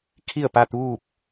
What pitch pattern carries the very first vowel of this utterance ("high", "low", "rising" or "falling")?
falling